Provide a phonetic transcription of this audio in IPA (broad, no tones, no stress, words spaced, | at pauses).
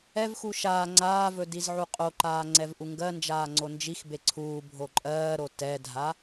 ɛvxu ʃaː ŋ͡ǀaːvɵ dizʕuqʼoǃaː ŋ͡ǀɛvʔuŋɡɜnd͡ʒaː ŋ͡ǀond͡ʒixbe ǀʰuː bʱoǃʼɜːɾo tɛdʱa